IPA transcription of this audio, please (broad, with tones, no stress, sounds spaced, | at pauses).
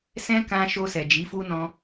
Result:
s ɛ̃˦ k ã˧ ʃ o˧ s ɛ˨ d͡ʒ i˨˦ f u˦ n ɔ̃˧